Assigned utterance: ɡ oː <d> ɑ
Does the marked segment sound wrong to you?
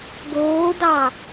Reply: no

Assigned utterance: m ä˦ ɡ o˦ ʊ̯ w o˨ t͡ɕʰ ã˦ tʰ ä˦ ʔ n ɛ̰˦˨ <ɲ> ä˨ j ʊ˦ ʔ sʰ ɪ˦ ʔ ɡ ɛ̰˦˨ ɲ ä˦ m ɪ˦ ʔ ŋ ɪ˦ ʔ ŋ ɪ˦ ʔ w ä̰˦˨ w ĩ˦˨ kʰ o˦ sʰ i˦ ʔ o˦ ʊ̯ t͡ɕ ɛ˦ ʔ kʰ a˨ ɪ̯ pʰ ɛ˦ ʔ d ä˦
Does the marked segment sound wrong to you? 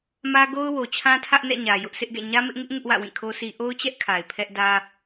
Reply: no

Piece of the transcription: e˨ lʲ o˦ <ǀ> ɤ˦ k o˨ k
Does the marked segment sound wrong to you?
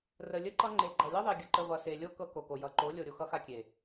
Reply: yes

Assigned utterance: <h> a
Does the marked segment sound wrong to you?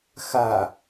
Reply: yes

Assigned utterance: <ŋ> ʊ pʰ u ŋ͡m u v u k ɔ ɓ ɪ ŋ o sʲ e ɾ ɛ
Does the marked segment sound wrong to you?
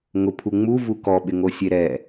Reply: no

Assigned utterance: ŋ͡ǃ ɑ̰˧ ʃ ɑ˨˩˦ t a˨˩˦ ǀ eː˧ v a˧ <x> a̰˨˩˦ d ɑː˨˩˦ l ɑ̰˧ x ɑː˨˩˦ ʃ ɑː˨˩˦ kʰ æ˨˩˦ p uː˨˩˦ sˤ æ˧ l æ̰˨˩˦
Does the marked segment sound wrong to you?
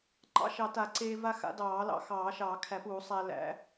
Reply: no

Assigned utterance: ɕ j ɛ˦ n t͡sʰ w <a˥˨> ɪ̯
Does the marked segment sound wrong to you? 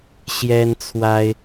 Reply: yes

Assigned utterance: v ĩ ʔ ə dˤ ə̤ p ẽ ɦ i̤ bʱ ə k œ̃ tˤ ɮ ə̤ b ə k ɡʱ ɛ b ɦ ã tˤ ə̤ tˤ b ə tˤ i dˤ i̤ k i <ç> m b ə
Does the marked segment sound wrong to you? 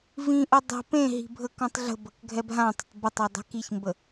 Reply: no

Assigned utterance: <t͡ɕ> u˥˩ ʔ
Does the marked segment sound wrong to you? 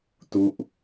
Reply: yes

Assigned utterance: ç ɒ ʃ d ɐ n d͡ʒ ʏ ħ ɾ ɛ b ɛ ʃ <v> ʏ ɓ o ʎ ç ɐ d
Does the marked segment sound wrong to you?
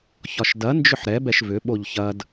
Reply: no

